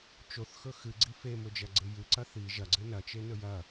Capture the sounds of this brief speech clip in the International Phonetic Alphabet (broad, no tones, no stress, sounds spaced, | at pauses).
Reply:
t͡ʃ o θ x ɵ x ɨ ɡ͡ǀ i f e m ɵ d͡ʒ ɐ ɡ͡ǀ ɨ j ɨ ǀ ɐ θ i ʒ ɐ ɡ͡ǀ ɨ n ɐ t͡ʃ e n ɵ j ɐ